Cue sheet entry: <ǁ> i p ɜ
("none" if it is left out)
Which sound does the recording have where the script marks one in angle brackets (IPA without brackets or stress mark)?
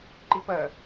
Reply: ǃ